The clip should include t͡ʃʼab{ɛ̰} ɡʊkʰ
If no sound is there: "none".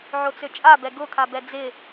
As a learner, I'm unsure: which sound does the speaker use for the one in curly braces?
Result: ɛ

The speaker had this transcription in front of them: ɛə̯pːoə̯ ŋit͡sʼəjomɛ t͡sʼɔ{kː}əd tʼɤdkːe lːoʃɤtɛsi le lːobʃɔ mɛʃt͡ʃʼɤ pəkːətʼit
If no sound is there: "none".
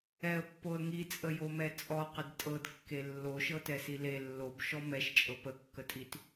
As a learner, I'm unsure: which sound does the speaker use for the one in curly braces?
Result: q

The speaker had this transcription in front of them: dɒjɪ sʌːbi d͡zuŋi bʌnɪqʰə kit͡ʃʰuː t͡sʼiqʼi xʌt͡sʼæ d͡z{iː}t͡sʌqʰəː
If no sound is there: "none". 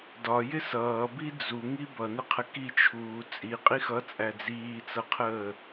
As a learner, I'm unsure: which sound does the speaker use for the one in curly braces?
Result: iː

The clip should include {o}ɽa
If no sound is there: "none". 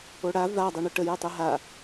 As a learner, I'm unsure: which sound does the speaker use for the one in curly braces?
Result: o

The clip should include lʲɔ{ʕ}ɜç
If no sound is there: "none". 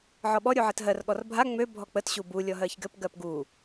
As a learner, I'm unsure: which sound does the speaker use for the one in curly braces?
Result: ɦ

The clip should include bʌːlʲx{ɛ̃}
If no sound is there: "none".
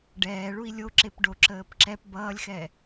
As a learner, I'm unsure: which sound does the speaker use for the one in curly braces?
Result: ɛ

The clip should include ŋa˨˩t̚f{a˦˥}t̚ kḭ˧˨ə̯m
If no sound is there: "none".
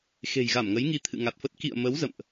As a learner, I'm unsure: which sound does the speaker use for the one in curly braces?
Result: ə˦˥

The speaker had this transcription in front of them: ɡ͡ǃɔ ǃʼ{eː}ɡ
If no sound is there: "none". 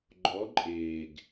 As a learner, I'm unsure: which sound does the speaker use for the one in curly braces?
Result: eː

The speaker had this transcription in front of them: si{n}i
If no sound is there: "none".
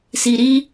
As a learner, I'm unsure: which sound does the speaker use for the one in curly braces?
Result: ɾ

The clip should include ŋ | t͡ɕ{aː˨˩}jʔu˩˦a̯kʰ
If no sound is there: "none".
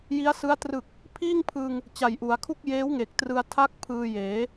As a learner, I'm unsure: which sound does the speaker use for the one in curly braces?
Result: a˨˩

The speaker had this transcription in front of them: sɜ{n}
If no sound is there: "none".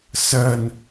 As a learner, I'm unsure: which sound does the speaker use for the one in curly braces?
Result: n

